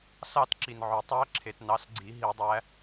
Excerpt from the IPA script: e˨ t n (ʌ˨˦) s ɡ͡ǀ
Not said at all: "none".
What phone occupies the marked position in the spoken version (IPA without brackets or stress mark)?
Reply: ɑ˨˦